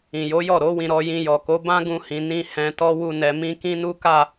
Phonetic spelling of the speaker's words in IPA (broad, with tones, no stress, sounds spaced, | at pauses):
ĩ˨ j o˨˦ j ɔ˦˨ ɾ o˨˦ w ĩ˧ ɾ ɔ˧ j ĩ˧ j ɔ˨ k o˨˦ b ã˦ ɡ ũ˧ h ĩ˨ n ĩ˧ h ɛ̃˧ t ɔ˦ w u˧ n ɛ˨ m ĩ˧ k ĩ˦ n u˦ k a˦˨